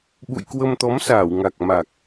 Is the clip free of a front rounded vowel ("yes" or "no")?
yes